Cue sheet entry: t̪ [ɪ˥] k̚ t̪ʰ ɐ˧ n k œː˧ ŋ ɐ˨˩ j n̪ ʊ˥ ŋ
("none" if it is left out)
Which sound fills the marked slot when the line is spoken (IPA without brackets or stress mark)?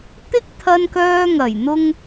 ɪ˥